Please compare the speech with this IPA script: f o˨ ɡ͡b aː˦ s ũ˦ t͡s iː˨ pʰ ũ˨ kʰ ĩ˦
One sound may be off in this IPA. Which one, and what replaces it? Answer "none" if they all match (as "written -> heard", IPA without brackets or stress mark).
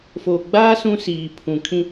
t͡s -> s